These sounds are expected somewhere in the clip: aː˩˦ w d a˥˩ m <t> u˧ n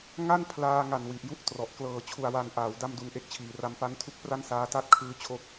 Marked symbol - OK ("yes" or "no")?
no